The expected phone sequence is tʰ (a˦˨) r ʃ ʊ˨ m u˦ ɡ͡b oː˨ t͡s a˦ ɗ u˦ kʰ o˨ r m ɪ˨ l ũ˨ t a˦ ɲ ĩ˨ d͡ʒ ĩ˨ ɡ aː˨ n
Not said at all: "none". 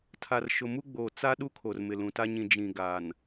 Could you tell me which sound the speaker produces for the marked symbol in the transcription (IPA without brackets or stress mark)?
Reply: a˨